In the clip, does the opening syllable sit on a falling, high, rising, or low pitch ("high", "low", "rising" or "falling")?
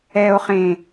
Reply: low